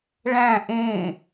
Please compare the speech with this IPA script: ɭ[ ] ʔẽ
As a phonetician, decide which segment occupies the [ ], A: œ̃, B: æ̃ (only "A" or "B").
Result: B